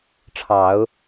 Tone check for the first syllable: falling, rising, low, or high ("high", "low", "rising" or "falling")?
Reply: low